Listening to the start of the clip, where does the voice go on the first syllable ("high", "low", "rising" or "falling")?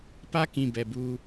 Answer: high